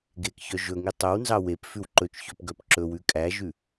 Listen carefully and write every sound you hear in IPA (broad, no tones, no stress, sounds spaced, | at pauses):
ɡ e k ç œ ʒ ɵ ŋ i tˤ ɵ w n z ɑ w e p f ʉ w ǃ ɵ t͡ʃ ç ø p ɡ œ p ǁ ɵ w ʉ kʼ æ ʒ ʉ